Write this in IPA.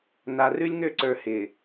n a˨ r ʉ˦ lʲ ŋ ø˦˨ ǀ ə˞˨ h ɪː˨

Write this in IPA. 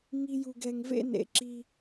ŋ i˦ j u˧ ɡ ɛ˧ ŋ v ḛ˦ n ḛ˨ ǁ i˧

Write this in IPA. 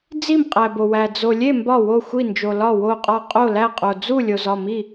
d͡z i˥˩ m qʼ æ˨ b o˨ w æ˨ d͡z o˨ lʲ e˥˩ m b ɒ˥˩ w o˥˩ xʷ i˥˩ n d͡ʒ o˨ l ɒ˥˩ w o˥˩ qʼ ɒ˥˩ qʼ o˥˩ l æ˥˩ qʼ o˨ d͡z u˥˩ lʲ o˨ z ɒ˥˩ m i˥˩

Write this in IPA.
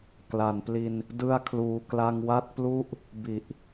k l a˩˦ n p l i˧ n | d ɯ˥˩ a̯ kʰ l uː˧ k l a˧ ŋ w a˥˩ t̚ p l u˥˩ ʔ | b i˨˩ ʔ

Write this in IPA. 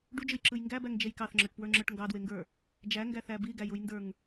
ɖ u d͡ʒ ɯ j ǁ ɯ j ŋ ɡ æ b æ ŋ d͡ʒ e j k ɑ θ ŋ͡ǁ ə˞ ʈ p w ə˞ ŋ͡ǁ ə˞ ʈ ŋ ɡ ɑ d w e ŋ ɡ ə˞ | d͡ʒ æ ŋ ɡ æ θ æ b i ɡ æ j u j n d ə˞ ŋ

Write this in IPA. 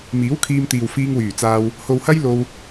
m iː˨˥ w kʰ iː˧ m t̪ iː˨ w f iː˧ ŋ w yː˨˩ t͡s aː˧ w | h o˨ w h ɐ˥ j l o˧ w

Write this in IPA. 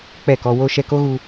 k͡p ɛ˦˨ k ɔ˧ w o˦ ʃ ɛ˧ k o˦ ɣ u˧

